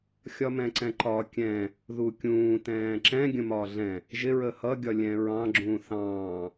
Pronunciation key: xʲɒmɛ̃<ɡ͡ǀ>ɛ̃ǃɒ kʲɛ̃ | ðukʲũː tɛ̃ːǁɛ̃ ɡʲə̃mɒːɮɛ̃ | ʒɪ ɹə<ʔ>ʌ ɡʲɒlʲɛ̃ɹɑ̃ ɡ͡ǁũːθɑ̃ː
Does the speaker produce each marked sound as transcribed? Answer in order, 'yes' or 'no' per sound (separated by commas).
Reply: no, no